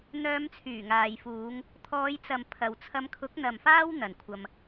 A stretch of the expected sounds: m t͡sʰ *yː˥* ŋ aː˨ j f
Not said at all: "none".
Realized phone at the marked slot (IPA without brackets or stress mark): yː˨˩